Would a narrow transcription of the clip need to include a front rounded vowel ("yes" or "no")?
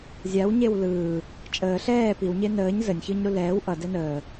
no